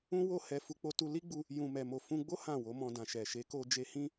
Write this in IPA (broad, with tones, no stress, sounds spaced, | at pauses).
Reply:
ũ˦ w o˦˨ h ɛ˧ f u˧ k͡p o˧ t u˧ l i˦ ɡ͡b u˧ | j ũ˨ m ɛ˨ m o˨ f ũ˧ ɡ͡b o˦ h ã˦˨ w o˨˦ m ɔ̃˧ d ã˨ ʃ ɛ˨ ʃ e˨˦ k o˧ d͡ʒ e˧ h ĩ˦